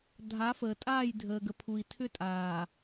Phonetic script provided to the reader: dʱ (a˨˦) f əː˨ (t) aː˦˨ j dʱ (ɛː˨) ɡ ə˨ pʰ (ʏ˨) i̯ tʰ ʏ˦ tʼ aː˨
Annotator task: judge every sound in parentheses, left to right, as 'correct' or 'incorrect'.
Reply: correct, incorrect, incorrect, incorrect

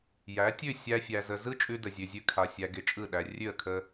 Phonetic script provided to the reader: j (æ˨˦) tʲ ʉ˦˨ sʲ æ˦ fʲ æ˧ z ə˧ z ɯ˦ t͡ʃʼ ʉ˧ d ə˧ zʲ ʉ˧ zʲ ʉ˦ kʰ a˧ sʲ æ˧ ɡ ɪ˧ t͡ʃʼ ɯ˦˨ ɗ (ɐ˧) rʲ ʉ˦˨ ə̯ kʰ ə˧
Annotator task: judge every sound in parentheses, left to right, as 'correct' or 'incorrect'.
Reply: correct, incorrect

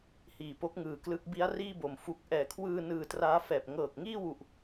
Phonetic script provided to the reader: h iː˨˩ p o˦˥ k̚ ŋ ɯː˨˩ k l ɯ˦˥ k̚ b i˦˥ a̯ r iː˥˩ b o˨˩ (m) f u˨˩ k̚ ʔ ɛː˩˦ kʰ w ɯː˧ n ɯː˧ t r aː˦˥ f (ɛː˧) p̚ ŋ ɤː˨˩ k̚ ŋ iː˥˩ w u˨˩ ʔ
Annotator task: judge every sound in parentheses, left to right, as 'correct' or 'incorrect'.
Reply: correct, incorrect

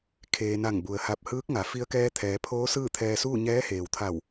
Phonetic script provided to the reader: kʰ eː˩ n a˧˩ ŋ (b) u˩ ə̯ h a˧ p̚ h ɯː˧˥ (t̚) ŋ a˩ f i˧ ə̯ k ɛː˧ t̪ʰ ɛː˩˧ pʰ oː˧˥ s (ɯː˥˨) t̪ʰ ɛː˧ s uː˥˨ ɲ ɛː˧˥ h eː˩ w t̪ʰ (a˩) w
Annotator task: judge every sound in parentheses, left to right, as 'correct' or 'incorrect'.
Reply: correct, incorrect, correct, incorrect

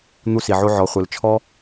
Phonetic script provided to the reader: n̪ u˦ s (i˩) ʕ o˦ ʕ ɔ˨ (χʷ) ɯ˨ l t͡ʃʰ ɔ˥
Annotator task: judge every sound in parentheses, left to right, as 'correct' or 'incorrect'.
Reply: incorrect, correct

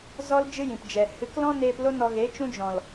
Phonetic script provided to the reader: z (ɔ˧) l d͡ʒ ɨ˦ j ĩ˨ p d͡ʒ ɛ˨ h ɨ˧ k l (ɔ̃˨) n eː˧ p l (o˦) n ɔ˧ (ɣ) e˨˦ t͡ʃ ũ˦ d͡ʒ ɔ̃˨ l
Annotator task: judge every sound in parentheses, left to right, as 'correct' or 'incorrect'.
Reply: incorrect, incorrect, correct, correct

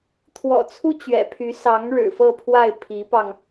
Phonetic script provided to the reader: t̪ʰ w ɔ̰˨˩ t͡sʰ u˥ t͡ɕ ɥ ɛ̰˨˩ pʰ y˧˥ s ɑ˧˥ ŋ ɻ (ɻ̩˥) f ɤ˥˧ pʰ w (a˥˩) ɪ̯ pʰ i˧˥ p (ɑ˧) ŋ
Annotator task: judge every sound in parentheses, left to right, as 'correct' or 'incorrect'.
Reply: incorrect, correct, correct

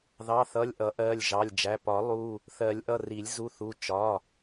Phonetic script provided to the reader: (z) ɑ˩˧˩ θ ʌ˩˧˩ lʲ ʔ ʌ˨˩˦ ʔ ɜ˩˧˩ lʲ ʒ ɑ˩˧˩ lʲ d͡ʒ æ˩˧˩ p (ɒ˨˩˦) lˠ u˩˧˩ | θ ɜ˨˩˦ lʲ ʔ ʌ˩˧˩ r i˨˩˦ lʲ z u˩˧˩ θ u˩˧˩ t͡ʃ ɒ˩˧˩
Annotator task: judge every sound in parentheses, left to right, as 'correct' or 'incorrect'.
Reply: incorrect, correct

